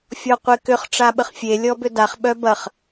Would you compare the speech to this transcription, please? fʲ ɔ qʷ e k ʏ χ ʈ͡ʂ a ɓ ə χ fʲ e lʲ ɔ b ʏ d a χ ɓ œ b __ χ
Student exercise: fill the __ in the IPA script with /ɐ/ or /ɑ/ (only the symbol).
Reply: ɐ